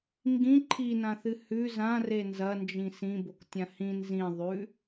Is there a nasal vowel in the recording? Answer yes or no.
yes